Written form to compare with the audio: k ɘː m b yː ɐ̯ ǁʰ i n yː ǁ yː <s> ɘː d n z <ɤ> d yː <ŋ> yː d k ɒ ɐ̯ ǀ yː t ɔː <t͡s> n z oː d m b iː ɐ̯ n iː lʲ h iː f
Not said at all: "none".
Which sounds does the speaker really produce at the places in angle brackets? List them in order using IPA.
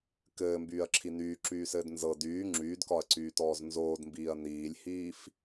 s, ɤ, ŋ͡ǁ, z

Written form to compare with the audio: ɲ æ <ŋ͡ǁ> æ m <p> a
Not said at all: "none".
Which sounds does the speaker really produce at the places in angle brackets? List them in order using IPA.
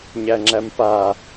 ŋ͡ǁ, p

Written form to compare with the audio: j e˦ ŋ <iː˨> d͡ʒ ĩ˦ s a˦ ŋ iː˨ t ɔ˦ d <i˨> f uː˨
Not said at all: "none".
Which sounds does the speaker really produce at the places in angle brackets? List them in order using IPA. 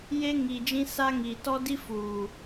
iː˨, i˦

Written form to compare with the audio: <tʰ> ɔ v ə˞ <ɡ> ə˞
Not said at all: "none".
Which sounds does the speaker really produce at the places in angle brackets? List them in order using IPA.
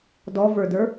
d, d

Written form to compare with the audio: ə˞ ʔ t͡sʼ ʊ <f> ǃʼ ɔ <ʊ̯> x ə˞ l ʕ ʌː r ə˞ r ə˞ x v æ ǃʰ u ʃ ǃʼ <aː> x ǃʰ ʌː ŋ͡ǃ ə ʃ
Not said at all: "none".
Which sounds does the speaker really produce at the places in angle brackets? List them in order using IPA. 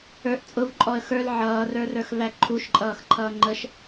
v, ə̯, ʌː

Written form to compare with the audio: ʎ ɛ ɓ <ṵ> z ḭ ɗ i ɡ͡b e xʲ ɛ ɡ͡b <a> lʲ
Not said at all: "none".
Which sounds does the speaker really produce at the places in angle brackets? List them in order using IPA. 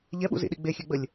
ṵ, ə

